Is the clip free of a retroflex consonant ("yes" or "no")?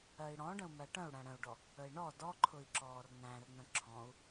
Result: no